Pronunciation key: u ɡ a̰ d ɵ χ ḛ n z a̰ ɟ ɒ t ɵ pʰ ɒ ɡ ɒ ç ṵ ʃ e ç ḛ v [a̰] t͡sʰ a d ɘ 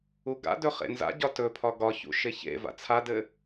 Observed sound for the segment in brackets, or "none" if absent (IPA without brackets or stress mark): a̰